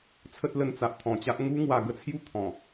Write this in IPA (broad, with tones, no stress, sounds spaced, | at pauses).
t͡sʰ ə˦ t̚ l ə˧ n t͡s a˨ ʔ t̪ʰ ɔ̃˨˩ t͡ɕ a˦ ʔ ŋ u˦ ŋ w a˧ ɡ ə˦ t͡sʰ j u˥˧ t̪ʰ ɔ̃˨˩